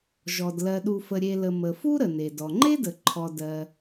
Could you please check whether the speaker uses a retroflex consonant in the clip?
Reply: no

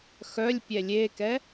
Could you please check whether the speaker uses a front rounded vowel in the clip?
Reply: yes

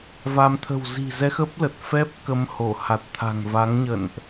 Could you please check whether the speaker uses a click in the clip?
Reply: no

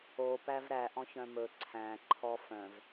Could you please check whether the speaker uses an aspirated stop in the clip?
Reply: yes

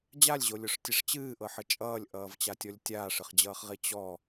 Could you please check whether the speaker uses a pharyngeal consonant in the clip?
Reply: yes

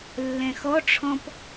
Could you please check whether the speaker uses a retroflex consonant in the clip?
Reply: yes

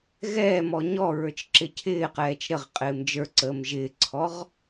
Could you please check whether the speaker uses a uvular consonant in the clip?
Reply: yes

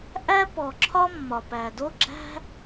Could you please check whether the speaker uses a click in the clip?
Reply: yes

